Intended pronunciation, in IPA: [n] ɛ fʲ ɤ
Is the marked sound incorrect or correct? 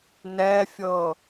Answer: correct